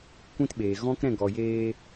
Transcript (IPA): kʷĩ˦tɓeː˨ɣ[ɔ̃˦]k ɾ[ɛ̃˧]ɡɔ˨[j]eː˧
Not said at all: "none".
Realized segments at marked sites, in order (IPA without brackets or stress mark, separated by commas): ɔ̃˦, ɛ̃˦˨, j